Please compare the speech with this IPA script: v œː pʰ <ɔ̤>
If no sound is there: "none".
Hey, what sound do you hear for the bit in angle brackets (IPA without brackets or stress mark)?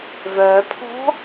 ɔ̤